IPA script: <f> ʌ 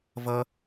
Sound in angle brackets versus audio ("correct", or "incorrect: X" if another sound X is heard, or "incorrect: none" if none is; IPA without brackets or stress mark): incorrect: v